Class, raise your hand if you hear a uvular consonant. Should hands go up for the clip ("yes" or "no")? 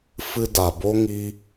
no